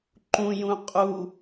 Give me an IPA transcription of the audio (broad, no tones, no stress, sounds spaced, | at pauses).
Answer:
ǃ ũ j ũ qʼ u